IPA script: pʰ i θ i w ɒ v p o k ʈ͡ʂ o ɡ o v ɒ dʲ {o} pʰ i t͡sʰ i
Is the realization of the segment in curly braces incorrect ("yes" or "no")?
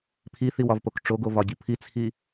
no